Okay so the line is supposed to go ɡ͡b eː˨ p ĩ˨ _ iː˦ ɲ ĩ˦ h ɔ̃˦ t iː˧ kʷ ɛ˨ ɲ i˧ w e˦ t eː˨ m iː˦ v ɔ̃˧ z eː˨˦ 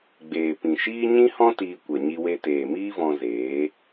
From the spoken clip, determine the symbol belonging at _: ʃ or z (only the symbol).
ʃ